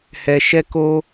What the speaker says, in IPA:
h ɛ˧ ʃ ɛ˦ k o˦

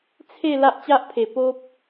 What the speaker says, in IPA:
t͡sʰ e˥˧ l a˦ ʔ t͡ɕ a˦ ʔ pʰ e˨˩ p o˦ p̚

